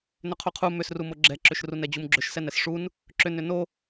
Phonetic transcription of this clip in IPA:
n ʏ qʰ u qʰ u m ʏ s r u m o ɡ͡ǁ ɛ ǁ ʏ ʃ r u n ɛ d͡ʑ u m ɡ͡ǁ ʏ ʃ s ɛ n ɛ s ʂ u n | ǁ ʏ n ʏ n o

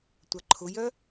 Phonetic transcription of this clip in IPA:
tʷ ɐ ǃʰ ʊ j œ

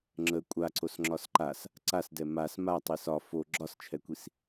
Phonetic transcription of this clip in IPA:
ŋ͡ǁ ə kʷʼ a ǀ o s ŋ͡ǁ ɒ s ǃ a s | ǀ a s d ɛ m a s m a tˤ i s ɒ f o ɡ͡ǁ ɒ s t͡ʃʰ ɛ kʷ i s

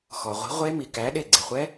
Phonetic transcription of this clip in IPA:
x ɔ˩ ʁʷ i̤˨˥ ʁʷ e˦˥ m i˩ k æ˨˥ ɗ e˧˩ ɡ͡ǀ e˩ χʷ ɛ˦˥

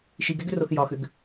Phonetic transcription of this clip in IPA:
ʃ i ɡ ɛ ɡ ʏ r o θ j ɒ x ʏ ɡ

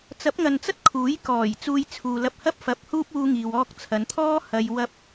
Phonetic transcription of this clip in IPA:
t͡s ɐ˨˥ p̚ ŋ ɐ˨ n t͡s ɐ˥ t̚ kʰ uː˨˥ j k ɔː˨˩ j t͡s uː˧ j t͡sʰ uː˨ l ɐ˧ p̚ h ɐ˥ p̚ f ɐ˧ p̚ h uː˥ p̚ uː˥ ŋ iː˧ w ɔː˥ k̚ t͡sʰ ɐ˨˧ n t̪ʰ ɔː˥ h ɐ˧ j w ɐ˥ p̚

